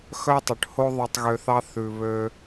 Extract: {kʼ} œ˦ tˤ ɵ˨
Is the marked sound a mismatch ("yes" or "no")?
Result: yes